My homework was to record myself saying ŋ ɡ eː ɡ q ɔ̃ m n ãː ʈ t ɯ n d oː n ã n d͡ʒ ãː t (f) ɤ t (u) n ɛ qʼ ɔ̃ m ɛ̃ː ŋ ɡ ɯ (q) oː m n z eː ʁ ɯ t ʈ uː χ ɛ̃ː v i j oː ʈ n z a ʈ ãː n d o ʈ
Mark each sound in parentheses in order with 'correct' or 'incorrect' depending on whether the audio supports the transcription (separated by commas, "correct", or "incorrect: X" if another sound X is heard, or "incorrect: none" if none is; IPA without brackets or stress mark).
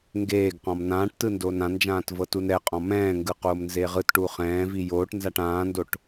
incorrect: v, correct, correct